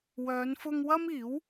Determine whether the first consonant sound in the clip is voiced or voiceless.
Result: voiced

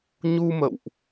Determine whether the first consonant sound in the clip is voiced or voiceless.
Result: voiced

